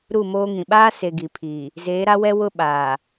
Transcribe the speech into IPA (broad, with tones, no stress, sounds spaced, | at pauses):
ɾ u˦˨ m oː˦ ŋ ĩ˨ ɓ aː˦ s e˨ ɡ i˨ pʰ iː˨ | z eː˨˦ ɾ a˦ w ɛ˦ w ʊ˦ ɓ aː˨